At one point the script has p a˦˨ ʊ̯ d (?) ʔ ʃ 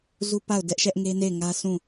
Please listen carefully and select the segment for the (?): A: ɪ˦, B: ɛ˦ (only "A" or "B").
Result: B